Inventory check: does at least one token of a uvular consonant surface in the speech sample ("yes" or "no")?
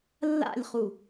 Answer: yes